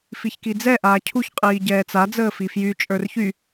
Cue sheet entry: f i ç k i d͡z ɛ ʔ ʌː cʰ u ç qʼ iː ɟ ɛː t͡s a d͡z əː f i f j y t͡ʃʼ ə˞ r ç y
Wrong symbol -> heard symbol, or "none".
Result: ʌː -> aː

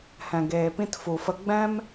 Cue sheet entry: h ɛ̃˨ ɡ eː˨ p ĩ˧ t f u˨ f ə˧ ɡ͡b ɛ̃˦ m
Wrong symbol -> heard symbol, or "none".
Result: none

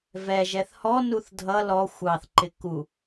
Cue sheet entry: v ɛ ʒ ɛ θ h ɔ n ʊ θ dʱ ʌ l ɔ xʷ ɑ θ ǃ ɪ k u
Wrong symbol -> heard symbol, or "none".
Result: ʊ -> u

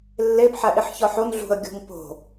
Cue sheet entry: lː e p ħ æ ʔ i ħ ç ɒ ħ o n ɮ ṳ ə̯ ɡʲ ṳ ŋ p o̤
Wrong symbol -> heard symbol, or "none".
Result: none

